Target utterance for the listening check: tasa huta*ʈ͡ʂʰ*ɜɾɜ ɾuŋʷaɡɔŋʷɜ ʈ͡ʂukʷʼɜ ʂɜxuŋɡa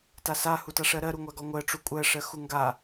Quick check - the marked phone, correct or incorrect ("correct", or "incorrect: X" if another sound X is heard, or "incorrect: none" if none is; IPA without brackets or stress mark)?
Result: incorrect: ʂ